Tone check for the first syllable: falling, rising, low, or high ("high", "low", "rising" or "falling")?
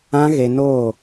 high